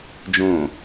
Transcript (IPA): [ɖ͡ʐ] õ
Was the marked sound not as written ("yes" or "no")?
yes